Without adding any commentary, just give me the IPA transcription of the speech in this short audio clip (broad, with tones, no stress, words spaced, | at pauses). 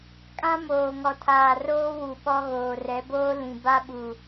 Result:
kʼã˦moː˨ŋɔ˨tʰaː˨ roː˦wu˨ ɓɔ˦ ɣoː˨rɛ˨˦boː˦ lĩ˨ ba˦ɓu˨